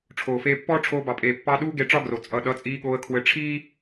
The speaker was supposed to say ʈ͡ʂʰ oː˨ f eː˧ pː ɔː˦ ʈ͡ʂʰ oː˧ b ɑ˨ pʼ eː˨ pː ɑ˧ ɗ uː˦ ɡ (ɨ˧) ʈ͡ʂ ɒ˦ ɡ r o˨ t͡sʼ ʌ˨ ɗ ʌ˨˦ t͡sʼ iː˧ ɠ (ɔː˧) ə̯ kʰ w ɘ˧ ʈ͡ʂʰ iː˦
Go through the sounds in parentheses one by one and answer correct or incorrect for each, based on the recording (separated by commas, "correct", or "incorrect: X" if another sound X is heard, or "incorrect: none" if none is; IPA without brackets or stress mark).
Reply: incorrect: e˧, incorrect: oː˧